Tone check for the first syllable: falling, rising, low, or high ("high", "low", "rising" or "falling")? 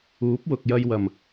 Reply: rising